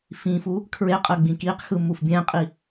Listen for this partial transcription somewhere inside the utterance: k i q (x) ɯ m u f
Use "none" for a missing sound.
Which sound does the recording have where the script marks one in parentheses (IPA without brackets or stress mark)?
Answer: x